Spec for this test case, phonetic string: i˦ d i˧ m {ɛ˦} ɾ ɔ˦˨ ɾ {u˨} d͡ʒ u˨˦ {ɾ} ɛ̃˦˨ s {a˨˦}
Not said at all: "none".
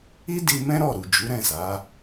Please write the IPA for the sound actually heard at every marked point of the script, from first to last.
ɛ̃˦, u˨, ɾ, a˨˦

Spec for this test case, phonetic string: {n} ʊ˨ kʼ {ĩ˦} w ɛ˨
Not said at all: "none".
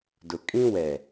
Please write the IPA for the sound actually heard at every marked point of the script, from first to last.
d, ĩ˦

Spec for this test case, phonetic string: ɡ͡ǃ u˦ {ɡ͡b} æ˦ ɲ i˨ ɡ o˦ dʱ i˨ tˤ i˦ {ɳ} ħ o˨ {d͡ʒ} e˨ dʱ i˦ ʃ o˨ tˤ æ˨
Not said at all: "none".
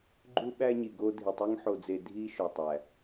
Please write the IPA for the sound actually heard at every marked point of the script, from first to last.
ɓ, ŋ, d͡z

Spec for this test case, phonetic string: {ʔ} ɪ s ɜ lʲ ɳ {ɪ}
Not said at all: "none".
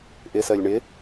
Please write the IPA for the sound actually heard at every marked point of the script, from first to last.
ʔ, ɪ

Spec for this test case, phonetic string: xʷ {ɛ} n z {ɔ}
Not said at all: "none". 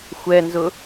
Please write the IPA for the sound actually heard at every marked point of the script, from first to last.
ɛ, ʊ

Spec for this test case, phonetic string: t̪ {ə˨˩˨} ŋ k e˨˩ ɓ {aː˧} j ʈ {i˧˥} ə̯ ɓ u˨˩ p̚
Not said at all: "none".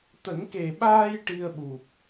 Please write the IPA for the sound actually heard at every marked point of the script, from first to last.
ə˨˩˦, aː˧, i˧

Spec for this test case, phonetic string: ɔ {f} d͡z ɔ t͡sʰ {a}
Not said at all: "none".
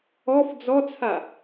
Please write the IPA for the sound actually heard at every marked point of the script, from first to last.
f, a

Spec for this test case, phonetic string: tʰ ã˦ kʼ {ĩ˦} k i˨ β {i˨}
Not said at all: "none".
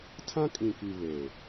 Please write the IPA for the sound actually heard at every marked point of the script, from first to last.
ĩ˨, e˨

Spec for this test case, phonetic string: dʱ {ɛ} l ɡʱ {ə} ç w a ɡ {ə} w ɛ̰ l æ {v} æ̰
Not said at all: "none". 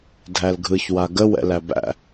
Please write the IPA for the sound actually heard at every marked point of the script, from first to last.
æ, ɯ, ə, b

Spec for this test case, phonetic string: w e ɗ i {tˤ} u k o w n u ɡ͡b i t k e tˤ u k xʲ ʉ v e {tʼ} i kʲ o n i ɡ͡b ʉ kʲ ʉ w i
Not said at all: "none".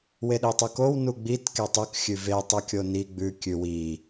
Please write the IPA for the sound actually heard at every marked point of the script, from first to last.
tˤ, tˤ

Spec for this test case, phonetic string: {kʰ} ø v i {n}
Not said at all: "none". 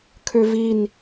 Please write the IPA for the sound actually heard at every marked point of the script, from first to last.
kʰ, n

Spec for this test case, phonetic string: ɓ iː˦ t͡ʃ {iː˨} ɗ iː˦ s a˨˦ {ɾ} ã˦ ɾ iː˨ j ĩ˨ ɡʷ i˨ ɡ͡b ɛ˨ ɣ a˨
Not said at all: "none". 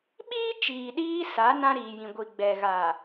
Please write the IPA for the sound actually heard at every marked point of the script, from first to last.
iː˨, n

